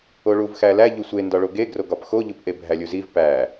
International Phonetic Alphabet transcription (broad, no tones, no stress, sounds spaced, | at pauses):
o ɭ u v x æ l æ ʎ u sʷ e n d ɒ ɭ o ɡ e ɡ r o ɡ ɒ p x o ʎ u p ʔ e bʱ æ lʲ u z i v p æ